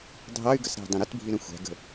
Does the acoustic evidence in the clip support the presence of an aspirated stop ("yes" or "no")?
no